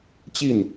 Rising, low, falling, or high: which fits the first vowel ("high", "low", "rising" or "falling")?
falling